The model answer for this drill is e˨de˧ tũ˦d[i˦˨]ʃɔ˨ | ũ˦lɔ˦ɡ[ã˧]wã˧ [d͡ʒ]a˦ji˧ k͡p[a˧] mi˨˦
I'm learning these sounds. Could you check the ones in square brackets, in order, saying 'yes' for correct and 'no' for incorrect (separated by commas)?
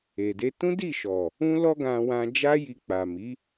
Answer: yes, yes, yes, no